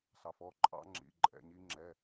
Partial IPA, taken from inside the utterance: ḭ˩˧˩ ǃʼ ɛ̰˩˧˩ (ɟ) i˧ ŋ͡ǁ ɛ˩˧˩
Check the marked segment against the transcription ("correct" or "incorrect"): incorrect